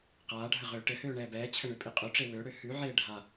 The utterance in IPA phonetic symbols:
qaːɖʱə ʁøːʈɘhøː ɳɛːbɛːt͡ɕʰə ɳøpʼiqʼøʈ͡ʂe wøɽø hʉʕeː ɖʱa

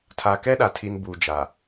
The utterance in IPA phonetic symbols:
tʰa˨kɛ˦ɗa˨tʰi˨n buː˨d͡ʒa˨

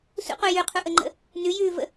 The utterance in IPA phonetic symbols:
sṵqu jʉqʰuʔəŋ͡ǃə̰ | nʉjʉːvə̰

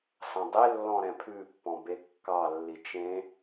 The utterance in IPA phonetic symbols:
sɑ̃dˤe lːɔ̃ɾɛ̃pʰʉ pːɔ̃bekːɑ lːit͡ʃẽ

